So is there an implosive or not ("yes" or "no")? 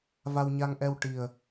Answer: no